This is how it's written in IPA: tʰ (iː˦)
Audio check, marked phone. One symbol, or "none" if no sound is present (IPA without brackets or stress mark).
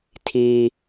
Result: iː˦